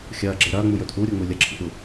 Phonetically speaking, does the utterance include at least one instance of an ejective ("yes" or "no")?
no